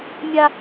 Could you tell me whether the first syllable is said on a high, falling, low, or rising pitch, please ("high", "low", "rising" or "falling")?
high